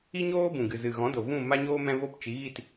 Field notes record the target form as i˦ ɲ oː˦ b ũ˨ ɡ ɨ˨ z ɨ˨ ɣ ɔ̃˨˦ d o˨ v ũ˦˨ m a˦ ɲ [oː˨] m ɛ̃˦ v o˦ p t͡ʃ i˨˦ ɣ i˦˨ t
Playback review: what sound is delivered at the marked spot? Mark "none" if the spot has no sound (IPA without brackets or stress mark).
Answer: oː˦